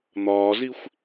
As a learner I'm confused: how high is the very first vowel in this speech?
low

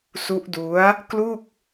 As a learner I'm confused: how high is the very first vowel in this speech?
high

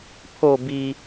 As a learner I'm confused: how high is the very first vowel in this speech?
mid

